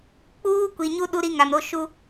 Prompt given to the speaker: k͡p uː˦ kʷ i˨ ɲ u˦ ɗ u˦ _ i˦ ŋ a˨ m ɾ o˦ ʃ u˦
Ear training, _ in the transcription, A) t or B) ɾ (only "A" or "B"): B